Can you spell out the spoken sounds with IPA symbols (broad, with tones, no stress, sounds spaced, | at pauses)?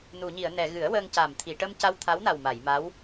n u˨˩˨ ɲ i˨˩˨ ə̯ n ɛ˨˩˨ ɣ ɨ˨˩˦ ə̯ w əː˧ ŋ c a˨˩ m t̪ʰ i˨˩˨ ʈ ə˧ m c a˧ w t̪ʰ a˧˥ w n a˨˩ w m a˨˩˨ j m a˧˥ w